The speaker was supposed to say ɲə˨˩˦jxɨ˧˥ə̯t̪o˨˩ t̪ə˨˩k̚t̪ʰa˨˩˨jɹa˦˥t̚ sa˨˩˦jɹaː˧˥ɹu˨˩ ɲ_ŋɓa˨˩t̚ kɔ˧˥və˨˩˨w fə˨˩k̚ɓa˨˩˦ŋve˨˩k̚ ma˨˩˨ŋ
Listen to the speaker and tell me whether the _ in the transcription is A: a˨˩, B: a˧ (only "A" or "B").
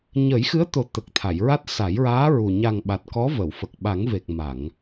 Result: A